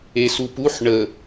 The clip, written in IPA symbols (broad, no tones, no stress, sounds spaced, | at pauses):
e s u p u ħ ɳ ə